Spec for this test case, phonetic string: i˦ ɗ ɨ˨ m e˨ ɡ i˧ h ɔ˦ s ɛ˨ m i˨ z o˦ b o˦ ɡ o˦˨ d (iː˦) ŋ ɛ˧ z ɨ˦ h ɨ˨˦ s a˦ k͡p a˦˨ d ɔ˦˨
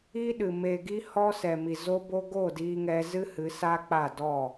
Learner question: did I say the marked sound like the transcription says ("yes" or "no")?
no